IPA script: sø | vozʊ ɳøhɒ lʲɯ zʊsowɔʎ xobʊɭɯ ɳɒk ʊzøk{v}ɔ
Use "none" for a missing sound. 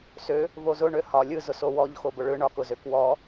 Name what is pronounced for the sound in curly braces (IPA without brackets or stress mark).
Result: w